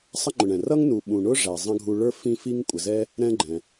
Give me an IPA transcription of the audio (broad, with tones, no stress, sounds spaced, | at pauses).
sˤ ə˥ ŋ͡ǃ ʊ˨ ɳ ɛ̃˩ r ʌ˥ ŋ n u˨ ɓ ũ˨ ɳ ʊ˥ ʐ æ˩ zˤ ə̃˥ ɡʱ u˦ ɭ ə˞˥ f ĩ˦ f i˦ ŋ kʷʼ ə˩ z ɛ˦ | ɾ ɛ̃˦ ɡ͡ǃ ɛ̃˩